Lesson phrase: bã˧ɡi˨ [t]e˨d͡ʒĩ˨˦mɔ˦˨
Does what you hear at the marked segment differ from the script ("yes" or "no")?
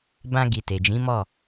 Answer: no